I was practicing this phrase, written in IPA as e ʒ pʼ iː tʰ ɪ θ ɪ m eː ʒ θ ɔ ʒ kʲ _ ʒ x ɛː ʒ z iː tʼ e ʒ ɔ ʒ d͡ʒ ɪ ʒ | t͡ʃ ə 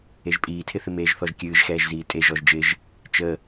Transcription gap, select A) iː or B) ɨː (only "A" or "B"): B